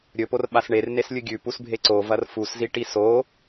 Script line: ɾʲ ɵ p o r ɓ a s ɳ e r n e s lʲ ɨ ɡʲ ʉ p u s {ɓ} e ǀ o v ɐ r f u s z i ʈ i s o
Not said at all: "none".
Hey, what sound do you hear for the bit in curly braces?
bʱ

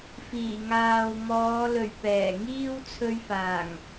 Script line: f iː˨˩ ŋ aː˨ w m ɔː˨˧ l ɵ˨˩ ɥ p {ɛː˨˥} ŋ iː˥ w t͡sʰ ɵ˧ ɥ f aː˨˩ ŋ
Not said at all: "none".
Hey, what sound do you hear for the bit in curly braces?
ɛː˨˩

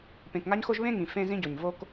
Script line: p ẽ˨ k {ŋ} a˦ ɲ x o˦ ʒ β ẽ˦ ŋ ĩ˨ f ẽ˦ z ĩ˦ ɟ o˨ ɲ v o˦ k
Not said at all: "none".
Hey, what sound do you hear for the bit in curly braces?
ŋ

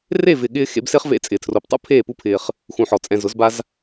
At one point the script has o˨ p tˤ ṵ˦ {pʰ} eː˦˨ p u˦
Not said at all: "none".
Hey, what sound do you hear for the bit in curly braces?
pʰ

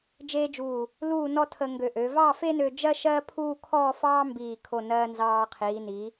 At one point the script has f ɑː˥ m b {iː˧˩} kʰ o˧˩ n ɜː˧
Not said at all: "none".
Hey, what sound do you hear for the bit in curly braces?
iː˧˩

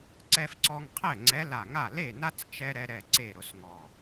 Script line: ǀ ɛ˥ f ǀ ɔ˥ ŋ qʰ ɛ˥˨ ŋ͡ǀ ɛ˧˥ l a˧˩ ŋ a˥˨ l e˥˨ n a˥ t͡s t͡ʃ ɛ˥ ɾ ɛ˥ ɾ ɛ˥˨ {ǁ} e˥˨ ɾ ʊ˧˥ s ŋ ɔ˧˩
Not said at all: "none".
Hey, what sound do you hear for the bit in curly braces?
ǀ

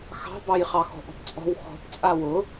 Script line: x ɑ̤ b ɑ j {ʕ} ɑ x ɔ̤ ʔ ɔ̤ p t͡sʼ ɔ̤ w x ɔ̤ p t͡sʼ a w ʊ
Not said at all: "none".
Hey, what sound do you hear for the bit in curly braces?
χ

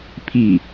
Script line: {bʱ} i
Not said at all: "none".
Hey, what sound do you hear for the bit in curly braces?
pʰ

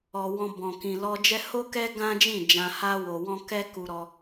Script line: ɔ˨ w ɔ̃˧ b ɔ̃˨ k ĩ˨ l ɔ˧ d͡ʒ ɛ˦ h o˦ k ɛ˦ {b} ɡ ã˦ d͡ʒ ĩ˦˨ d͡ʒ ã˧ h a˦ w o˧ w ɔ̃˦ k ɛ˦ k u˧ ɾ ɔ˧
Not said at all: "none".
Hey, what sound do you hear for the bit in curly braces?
none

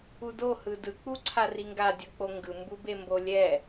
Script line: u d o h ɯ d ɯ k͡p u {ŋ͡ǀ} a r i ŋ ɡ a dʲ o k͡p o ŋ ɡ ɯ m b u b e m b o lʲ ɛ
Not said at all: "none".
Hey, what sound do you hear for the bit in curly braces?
ǀʰ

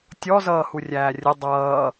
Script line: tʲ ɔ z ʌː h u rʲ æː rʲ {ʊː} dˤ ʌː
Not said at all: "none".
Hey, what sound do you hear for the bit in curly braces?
ʊ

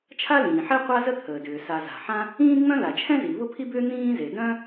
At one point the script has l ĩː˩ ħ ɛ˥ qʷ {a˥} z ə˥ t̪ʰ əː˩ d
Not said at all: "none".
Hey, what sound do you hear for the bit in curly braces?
a˥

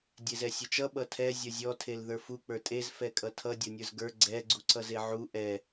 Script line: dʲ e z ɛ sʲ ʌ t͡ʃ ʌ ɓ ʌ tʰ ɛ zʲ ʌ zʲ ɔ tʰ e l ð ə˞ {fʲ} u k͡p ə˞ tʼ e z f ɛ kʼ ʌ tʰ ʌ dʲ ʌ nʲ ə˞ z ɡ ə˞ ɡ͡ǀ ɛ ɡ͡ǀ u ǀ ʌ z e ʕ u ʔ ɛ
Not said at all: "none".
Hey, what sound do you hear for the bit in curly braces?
f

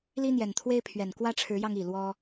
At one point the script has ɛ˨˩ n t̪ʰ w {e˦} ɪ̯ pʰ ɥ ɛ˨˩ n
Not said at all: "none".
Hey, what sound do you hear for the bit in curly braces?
e˦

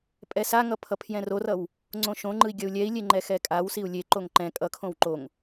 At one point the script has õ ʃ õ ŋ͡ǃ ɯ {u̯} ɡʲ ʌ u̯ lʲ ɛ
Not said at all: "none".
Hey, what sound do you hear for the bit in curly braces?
i̯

